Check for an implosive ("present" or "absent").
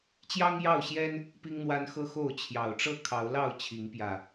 absent